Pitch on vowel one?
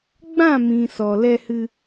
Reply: falling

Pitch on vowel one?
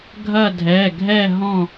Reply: falling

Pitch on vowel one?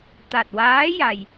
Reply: low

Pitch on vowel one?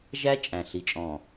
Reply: high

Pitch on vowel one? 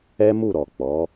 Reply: high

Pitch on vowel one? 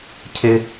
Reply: low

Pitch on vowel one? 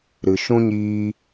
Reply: low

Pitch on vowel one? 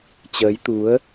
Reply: rising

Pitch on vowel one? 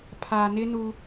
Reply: low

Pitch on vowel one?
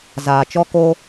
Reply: low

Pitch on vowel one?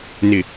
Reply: low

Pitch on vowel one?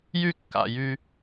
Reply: low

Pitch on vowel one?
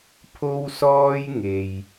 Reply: high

